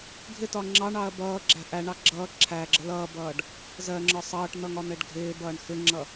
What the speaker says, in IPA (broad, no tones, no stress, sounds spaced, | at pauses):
ɡʱ ɪ t ɒ ŋ͡ǁ ɑ ɳ ɑ ɐ̯ b ʌː ɡ͡ǁ æ̤ ʔ æ ɳ ɑ ɡ͡ǁ ʌː ǁʰ æ ɡ͡ǁ ə l ʌː b ʌː ɖ | z ɜ ŋ͡ǁ ɒ sˤ ʌː ʈ n̪ ʌ ŋ ɒ n̪ ɛ ɖ ɡʱ ɪː b ʌː ɳ x ɪ ŋ͡ǁ ʌ